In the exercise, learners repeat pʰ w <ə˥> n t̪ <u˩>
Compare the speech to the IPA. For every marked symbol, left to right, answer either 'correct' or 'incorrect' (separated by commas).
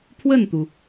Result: incorrect, correct